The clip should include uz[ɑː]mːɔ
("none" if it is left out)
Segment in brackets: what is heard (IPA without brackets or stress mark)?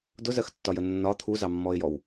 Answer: ɑ